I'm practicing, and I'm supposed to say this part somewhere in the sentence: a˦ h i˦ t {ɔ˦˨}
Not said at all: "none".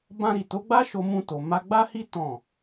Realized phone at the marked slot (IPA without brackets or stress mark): ɔ̃˦˨